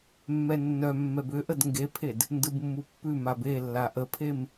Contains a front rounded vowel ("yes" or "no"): yes